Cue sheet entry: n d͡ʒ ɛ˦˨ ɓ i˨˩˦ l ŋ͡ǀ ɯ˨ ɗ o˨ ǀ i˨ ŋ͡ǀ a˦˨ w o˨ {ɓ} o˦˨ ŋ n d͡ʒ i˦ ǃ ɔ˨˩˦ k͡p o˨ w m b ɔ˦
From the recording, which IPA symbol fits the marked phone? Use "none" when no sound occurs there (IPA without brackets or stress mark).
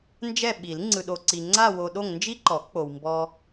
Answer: ɗ